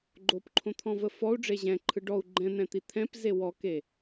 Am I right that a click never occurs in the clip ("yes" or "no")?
no